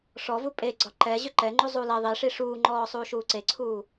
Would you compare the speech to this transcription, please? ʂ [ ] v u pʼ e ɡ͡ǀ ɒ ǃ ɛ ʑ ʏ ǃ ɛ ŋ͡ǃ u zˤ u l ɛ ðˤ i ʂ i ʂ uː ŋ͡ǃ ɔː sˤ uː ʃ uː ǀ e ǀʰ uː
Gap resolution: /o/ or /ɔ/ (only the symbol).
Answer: ɔ